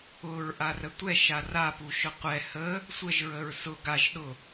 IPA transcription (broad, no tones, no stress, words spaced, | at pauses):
ʊɹʔarə tʷɛʃa rapuʃʊ qʷɛ hə | sʷəʒɹəɹ sʊ ɡaʒɗʊ